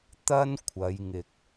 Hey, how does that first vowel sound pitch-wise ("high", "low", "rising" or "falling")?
high